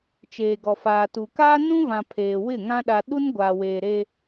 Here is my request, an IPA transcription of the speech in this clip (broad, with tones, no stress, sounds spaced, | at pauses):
t͡ʃ eː˨ ɡ ɔ˨ f aː˨ t uː˨ k aː˦ n ũ˦ v ã˨ pʰ eː˨ w ɪ˦˨ ŋ ã˦ ɗ a˨ ɗ u˦ n ɡʷ aː˨ w eː˨ ɾ e˦